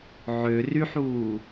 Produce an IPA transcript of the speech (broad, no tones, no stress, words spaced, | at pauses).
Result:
ʕø ryħuː